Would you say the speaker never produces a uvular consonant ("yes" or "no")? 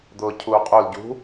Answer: no